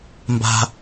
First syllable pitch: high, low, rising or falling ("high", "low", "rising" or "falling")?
high